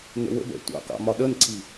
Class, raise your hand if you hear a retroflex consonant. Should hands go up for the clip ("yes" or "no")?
no